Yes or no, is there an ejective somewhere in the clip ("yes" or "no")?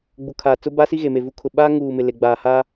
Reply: no